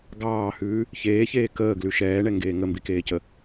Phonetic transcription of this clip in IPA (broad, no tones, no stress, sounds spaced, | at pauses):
ɡ ɑː h ʉː | ç eː ç eː k əː ɡ l ʉ ʃ ɛː ɳ ɛ ŋ ɡ eː ŋ ə m b i k eː c ə